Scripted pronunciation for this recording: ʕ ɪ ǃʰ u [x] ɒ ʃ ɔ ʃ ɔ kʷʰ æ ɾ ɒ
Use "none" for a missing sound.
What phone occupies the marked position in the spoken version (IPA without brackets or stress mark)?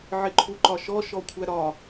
ǃ